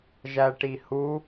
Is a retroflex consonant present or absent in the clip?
present